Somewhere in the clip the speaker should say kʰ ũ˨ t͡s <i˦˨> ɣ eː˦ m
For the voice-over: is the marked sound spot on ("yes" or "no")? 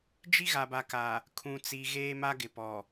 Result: no